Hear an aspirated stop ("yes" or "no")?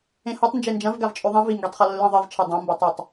yes